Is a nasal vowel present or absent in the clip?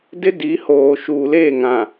present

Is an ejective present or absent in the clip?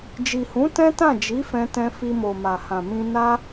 absent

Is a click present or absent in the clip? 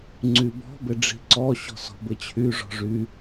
present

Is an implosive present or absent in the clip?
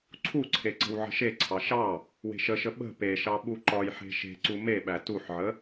present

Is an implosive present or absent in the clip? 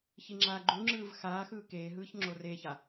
absent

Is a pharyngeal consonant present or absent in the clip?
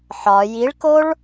present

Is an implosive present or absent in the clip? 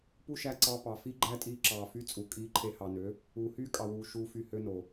absent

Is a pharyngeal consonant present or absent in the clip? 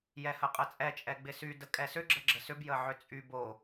present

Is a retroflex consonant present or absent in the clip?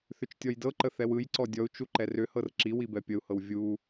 absent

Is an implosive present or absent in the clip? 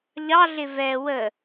absent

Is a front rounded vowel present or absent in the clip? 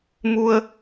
absent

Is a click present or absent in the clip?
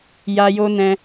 absent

